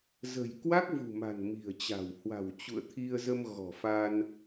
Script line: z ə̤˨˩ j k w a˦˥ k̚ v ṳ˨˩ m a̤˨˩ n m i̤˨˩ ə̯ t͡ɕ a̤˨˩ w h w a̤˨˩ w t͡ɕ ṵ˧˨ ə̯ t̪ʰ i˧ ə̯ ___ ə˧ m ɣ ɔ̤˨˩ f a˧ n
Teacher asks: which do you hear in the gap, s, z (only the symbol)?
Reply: z